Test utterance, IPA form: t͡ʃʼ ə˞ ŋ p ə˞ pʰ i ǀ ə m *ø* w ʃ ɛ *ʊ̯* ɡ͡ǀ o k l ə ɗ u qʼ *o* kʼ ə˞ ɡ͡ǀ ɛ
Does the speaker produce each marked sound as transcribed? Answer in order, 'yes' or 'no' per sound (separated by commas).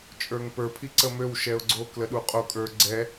yes, yes, yes